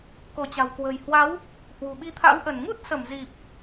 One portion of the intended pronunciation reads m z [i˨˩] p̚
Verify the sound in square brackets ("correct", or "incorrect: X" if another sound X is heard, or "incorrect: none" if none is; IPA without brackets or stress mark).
correct